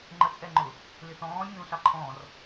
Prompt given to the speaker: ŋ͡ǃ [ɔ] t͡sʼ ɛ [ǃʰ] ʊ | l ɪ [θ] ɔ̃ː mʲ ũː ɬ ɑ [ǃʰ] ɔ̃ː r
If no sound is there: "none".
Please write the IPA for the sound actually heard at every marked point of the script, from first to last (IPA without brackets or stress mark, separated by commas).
ə, ŋ͡ǃ, θ, ǃʰ